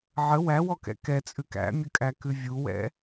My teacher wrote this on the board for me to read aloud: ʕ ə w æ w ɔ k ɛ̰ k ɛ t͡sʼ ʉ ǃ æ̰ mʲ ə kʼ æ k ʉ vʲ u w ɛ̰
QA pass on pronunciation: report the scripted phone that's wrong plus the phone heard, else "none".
ǃ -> k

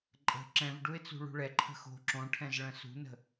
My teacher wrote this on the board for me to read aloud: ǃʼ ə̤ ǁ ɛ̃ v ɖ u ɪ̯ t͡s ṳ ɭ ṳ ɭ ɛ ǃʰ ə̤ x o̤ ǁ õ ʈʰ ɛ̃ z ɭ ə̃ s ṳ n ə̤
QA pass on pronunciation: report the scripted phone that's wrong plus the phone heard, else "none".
none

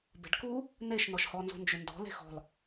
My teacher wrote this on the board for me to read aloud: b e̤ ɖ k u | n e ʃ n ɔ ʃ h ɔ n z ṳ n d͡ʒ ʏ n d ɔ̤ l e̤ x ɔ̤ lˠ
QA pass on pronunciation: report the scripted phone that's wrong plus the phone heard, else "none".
none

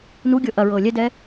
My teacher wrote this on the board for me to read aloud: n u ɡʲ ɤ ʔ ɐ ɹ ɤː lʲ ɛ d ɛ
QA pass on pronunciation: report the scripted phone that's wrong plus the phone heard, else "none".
none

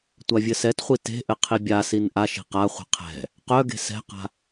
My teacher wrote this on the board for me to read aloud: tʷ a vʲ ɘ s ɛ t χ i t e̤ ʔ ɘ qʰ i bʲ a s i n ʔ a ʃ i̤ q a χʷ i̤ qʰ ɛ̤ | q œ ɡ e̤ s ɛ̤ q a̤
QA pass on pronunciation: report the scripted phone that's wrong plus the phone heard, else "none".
χ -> χʷ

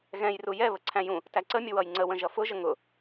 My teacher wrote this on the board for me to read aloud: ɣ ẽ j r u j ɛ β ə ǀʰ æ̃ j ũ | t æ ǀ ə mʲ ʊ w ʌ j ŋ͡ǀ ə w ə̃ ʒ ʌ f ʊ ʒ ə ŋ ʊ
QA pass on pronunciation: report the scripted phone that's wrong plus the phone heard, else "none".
ẽ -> ɛ̃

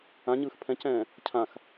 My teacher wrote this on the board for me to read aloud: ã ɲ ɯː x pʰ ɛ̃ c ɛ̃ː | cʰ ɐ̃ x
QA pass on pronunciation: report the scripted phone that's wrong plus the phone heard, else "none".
ɐ̃ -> ã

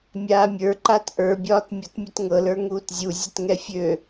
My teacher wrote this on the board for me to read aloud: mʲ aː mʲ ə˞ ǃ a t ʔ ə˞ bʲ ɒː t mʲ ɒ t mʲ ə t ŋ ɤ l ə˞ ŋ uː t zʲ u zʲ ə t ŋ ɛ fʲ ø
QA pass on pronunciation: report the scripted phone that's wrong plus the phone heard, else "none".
none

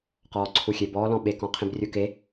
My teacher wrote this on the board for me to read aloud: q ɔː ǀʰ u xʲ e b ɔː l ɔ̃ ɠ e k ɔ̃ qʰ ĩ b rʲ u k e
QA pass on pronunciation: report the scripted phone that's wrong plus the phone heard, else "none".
ɠ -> ɓ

